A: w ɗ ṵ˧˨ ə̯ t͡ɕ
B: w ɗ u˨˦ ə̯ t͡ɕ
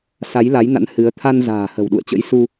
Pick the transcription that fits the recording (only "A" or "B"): A